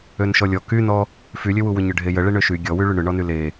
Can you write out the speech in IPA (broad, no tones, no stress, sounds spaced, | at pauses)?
ø n ʃ ɔ lʲ ɔ k y n ɔ | f y lʲ ø w u w ʏ ɲ ʏ ɖʱ e j ə ɭ e ɳ ø ʃ y ɡʲ ɔ w y ɭ y ɳ ʏ ɳ ɔ n y l e